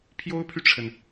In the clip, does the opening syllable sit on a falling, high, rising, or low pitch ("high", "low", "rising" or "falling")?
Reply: high